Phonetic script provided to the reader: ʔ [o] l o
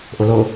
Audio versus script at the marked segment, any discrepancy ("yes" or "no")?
no